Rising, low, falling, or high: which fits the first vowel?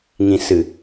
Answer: low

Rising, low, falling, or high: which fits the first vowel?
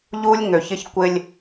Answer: high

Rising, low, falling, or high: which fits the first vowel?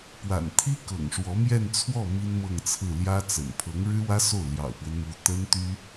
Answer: low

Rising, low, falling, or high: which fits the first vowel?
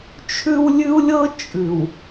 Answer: high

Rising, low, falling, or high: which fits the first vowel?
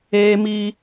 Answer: high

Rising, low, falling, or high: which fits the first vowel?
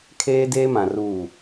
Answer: high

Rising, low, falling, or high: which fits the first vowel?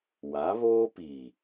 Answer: rising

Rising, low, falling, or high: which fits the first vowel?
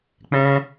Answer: high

